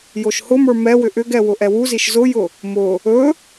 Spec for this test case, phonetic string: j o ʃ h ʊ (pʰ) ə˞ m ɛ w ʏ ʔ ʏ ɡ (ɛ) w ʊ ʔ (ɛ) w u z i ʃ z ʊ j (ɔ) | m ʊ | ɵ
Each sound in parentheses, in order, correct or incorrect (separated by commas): incorrect, correct, correct, incorrect